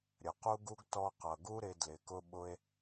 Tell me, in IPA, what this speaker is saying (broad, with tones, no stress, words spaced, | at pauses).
ɾʲə˨qu˦ɡu˦ɡ tɔ˧qʌ˨ɡu˦ ɾɪ˧ dlɪ˨kʊ˧ ɓʊ˦e̯